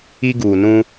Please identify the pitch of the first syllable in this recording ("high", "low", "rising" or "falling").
high